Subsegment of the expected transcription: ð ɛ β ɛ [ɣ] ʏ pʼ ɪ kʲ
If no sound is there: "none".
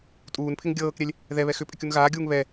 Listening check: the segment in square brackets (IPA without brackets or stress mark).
x